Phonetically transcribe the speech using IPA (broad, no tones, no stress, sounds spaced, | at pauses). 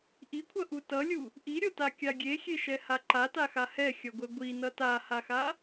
ʔ i kʷʰ ʌ ʔ u t ʌ lʲ u | ʔ i ɾʲ o t a kʲ a ɡʲ e xʲ e ʃ ɛ h a ǃ a t a x a h ɛ xʲ ʌ ɡʷ ɛ ɡʷ i n ʌ t a h a x a